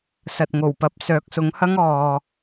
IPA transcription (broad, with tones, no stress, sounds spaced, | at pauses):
s ɐ˨ t̚ ŋ o˨˩ w p ɐ˨˥ p̚ s œː˨˥ k̚ s ʊ˨˥ ŋ h ɐ˥ ŋ ɔː˨